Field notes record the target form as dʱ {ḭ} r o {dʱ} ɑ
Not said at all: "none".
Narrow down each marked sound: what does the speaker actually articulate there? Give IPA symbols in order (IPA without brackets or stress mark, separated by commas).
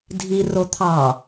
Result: i, t̪ʰ